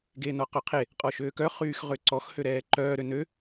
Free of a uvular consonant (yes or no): no